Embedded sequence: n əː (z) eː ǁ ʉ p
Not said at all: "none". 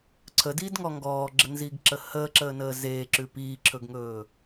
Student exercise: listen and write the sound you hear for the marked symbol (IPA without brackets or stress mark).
z